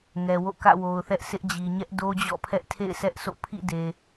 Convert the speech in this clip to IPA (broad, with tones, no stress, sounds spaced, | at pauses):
ŋ ɛ˨ w o̰˦˨ k ä̰˦˨ w o˨ ʊ̯ θ ɛ˦ ʔ s ɪ˦ ʔ d͡ʑ i˨ ɲ ɛ˦ ʔ d o˦ d͡ʑ ɔ̰˦˨ pʰ ɛ˦ ʔ tʰ ḛ˦˨ ɪ̯ sʰ ɛ˦ ʔ sʰ o̰˦˨ pʰ ḭ˦˨ d e˨